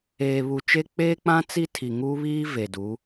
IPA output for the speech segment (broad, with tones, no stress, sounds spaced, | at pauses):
eː˨ β u˨ t͡ʃ e˦ k͡p eː˦ k͡p ã˦ t͡s i˦ tʰ i˨ ŋ uː˦ β iː˦ v e˨ d uː˨˦